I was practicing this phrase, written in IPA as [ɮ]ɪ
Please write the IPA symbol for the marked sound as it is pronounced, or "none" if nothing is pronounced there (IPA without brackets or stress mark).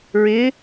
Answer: ɹ